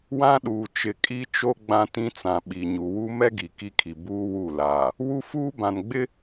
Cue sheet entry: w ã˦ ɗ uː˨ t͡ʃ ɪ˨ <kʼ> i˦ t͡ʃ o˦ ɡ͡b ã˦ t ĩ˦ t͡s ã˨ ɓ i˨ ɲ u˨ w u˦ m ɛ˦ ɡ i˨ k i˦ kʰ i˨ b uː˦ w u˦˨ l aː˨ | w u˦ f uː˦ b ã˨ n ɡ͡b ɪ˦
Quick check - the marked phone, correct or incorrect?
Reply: correct